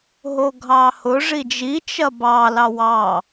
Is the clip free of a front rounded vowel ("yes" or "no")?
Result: yes